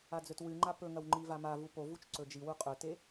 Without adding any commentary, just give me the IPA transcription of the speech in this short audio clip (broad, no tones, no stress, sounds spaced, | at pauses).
a d͡z ɵ t w ɨ ŋ͡ǃ a p ɵ ŋ ɐ w ŋ͡ǃ i v a m a v u p o v u t͡ʃ ǀ ɵ d͡ʒ i w u qʼ ɵ t e